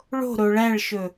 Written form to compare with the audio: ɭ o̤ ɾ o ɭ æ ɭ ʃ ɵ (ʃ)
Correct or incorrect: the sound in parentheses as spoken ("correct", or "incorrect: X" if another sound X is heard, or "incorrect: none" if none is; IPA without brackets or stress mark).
incorrect: none